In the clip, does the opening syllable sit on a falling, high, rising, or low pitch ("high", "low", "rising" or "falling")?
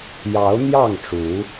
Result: rising